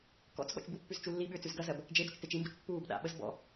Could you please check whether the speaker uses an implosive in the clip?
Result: yes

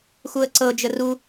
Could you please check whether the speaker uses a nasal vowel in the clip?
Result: no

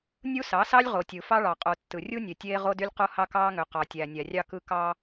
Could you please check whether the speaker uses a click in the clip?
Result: no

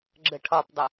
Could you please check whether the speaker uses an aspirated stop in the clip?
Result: yes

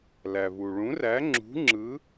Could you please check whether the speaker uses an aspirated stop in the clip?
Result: no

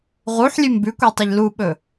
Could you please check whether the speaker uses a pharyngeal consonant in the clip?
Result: yes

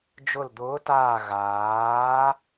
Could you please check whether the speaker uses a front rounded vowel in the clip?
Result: no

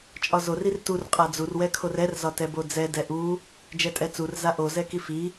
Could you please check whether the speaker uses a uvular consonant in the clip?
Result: yes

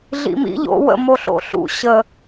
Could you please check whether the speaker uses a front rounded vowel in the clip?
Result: no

